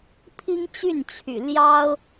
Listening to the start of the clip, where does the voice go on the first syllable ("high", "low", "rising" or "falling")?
high